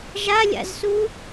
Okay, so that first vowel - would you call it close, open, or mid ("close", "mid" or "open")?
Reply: open